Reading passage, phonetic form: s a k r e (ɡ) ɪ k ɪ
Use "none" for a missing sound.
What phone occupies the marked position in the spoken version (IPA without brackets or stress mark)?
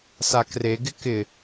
ɡ